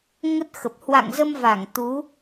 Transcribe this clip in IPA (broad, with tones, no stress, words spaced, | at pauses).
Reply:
ŋə˦˥t̚xə˨˩p̚ hwa̰˧˨ŋzə˧mva˧˩ŋ t̪u˨˦